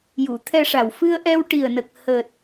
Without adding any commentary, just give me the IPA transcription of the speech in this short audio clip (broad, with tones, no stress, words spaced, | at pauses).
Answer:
ju˨˩˨t̪ʰɛ˧ʂa˨˩w fɨ˧ə̯ʔɛ˧w ʈi˨˩ə̯nə˨˩k̚ həː˨˩t̚